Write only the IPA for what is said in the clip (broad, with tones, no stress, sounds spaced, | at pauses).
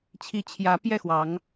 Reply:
t͡ɕʰ i˨˦ t͡ɕʰ j ä˨˦ p j ɛ˥˨ x w ɑ˨˦ ŋ